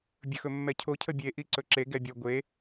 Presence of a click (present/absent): present